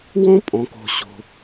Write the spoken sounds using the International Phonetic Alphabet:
wɔ̃˥pʼɔ̃˩ko̤˩ ɕo̤˩

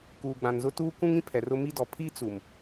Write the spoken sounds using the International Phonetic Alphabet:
kuː˨ɡ͡bã˨nzʊ˦tuː˦ kʷũ˦ŋĩ˦pʰɛ˨r ʊ˦mi˦dɔ˨ pʰi˦ t͡su˨m

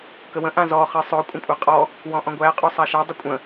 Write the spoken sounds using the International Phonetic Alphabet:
kəwə̃ ʔãzɔχɪ sˤɵ kʷʼə̃kʷʼaqʼɔ | wɔ̃ʔɔ̃ɡʷæ qʼosˤaʃadˤɪ kʷʼə̃

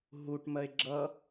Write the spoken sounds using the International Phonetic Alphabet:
ɦuʈmɜe̯ ɡ͡ǁʌ

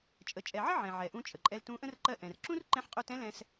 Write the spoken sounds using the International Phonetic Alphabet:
t͡ʃʼə˩t͡ʃʼɛ˩ʕə˥ ʕɛ̃˩ʕɛ˩ʔũ˧ t͡ʃʼə˩ǃʼɛ˧ltũ˧˥ʔə̃˥r ǃɜ˧ ʔɛ̃˩rǁũ˥r ǃɛ̃˧˥ħqʼu˧tɛ̃˧˥lɛ̃˧s

